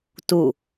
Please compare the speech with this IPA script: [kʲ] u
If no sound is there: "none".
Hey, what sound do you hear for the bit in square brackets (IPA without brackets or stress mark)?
t